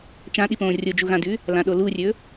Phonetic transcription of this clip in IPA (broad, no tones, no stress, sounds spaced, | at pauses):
t͡ʃ ã ɗ i p õː rʲ o d͡ʒ u ɣ ã d ʉ | l ã ɗ o l u rʲ ɵ